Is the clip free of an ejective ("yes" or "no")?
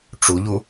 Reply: yes